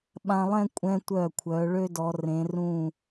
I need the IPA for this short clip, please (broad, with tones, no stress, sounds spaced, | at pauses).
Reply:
ɓ ã˧ lˠ ɛ̃˥˧ kʷʼ ɛ̃˧ tʷ œ˧˩ kʷʰ œ˩˧ ɭ ø˥ d ɔ˩˧ r ẽ˩˧ r ũ˧˩